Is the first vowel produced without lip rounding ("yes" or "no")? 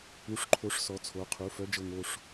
no